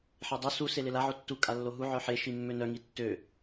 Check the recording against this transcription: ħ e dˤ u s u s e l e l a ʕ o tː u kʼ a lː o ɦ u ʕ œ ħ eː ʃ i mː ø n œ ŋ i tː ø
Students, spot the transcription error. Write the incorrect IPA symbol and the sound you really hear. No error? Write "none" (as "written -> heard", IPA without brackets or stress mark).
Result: eː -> e